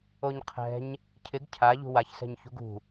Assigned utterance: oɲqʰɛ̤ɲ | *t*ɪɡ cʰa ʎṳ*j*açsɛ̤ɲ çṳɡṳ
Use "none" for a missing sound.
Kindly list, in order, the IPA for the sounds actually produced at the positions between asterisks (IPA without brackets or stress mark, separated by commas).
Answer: cʰ, w